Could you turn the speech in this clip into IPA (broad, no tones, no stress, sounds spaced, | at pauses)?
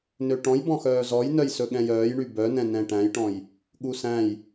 n ø ʈ ɔ̃ j b ɔ̃ x œː z ɔ j n œ j s ɵ ɠ ɛ̃ j œː j ɳ y b œ n ɛ̃ n ɛ̃ ʈ æ̃ j ʈ ɔ̃ j | ɠ u s æ̃ j